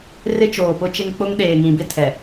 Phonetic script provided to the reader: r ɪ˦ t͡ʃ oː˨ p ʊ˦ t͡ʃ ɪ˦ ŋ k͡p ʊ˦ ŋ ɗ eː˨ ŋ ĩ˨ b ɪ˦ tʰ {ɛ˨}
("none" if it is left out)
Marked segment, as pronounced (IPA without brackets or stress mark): ɛ˨